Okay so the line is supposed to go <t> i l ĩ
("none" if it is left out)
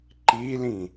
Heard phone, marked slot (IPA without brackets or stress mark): ǃ